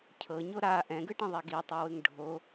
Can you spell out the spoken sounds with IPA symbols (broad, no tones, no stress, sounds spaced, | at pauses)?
cʰ ɤ ɲ o ɾ a ʔ ɛ̃ ɡ ɯ ʈ ĩ ðˤ ɛ ɡ i tˤ u w ɯ ŋ ɖʱ o